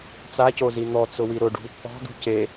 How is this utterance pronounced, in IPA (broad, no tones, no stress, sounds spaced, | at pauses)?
t͡s a c o z i n̪ ɔ t͡s ʊ w i ɾ ʊ ɖ ṳ | ɔ̤ d̪ ṳ c e